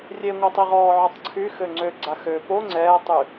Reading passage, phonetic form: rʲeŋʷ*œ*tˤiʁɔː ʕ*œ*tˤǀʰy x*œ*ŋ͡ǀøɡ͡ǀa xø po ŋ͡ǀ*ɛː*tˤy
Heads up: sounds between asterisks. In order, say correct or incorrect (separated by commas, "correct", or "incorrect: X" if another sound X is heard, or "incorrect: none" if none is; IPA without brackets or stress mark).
incorrect: ɛ, correct, incorrect: ø, correct